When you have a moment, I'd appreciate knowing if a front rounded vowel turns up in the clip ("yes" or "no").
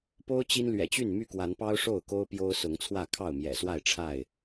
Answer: yes